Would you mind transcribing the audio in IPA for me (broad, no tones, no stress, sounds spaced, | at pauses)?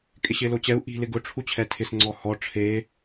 kʼ ɪ ɕ ɪː l o t͡ɕ ɛ u̯ ʔ i̤ l ɪ ɡ ʊ ʈ͡ʂʰ u t͡ɕʰ ɛ tʰ ɪ s ŋ͡ǀ ɔ h ɔ ʈ͡ʂʰ eː